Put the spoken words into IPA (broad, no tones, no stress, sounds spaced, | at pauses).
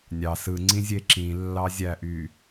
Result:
nʲ ɑ s ɯ ŋ͡ǀ ĩ zʲ e ǁ ĩ lː ɑ zʲ æ ʔ y